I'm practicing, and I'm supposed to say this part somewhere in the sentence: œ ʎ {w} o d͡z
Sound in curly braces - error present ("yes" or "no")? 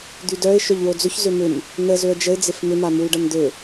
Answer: no